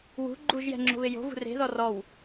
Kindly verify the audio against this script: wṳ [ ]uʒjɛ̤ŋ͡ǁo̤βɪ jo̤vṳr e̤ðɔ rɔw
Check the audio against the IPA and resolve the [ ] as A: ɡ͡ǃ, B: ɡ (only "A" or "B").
A